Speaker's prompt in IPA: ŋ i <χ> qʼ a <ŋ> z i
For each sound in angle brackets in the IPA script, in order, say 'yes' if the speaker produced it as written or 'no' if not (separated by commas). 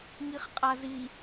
yes, no